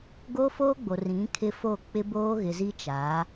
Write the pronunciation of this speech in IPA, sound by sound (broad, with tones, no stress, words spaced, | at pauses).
ɡo˦ foː˦ɡ͡bo˨ rĩ˨˦ kʰɪ˦fo˦˨ k͡pɪ˦boː˦ ɣɪ˨zi˦ t͡ʃaː˨˦